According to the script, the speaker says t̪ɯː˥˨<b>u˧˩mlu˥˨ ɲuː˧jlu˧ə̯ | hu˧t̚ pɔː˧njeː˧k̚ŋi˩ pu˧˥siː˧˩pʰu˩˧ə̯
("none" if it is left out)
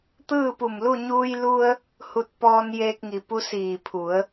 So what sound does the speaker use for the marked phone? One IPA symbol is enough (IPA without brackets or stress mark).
p